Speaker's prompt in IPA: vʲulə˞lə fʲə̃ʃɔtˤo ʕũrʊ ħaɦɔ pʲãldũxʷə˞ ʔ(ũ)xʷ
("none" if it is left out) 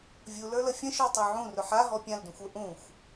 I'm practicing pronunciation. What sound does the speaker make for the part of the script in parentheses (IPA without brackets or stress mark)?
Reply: ũ